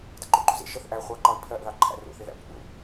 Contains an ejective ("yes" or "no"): no